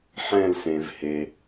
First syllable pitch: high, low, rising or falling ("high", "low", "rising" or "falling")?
falling